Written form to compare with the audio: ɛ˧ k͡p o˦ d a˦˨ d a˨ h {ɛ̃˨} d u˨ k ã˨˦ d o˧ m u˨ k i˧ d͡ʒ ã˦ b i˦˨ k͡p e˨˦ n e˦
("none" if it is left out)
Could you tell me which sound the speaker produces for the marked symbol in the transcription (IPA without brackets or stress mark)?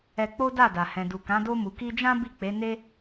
ɛ̃˨